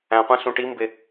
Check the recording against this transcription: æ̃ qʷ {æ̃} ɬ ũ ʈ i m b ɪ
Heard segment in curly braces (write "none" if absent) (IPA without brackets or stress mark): æ̃